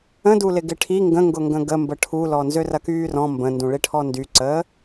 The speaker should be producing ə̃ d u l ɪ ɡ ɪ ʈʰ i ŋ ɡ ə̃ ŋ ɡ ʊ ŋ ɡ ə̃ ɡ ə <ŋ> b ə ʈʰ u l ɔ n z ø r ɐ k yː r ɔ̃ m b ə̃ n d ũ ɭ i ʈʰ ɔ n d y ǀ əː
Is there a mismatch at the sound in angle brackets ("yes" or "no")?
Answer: yes